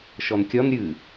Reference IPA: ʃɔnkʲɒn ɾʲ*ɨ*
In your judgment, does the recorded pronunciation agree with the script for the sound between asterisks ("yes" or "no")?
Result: yes